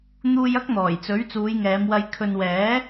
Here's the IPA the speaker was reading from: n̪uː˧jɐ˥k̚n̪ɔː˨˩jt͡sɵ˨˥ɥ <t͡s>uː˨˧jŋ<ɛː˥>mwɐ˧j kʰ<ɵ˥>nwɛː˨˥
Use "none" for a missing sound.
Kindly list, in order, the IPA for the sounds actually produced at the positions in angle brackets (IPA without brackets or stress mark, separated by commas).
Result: t͡s, ɛː˨˧, ɵ˨